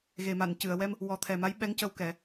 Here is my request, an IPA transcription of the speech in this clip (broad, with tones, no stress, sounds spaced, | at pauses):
ɣ e˨˩ m a˨˩˨ n c ɨ˨˩˨ ə̯ w ɛ˧ m | w ɔ˨˩˦ t̪ʰ ɛ˨˩ m a˧˥ j ɓ ɛ˧˥ ŋ c ə˧ w k ɛ˨˩˦